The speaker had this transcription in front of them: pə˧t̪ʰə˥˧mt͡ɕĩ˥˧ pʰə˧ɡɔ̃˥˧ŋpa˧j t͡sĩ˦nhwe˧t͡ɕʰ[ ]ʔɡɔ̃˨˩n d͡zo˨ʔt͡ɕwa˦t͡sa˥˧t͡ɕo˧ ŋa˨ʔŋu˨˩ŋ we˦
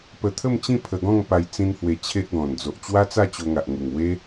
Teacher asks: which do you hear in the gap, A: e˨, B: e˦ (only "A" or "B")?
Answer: B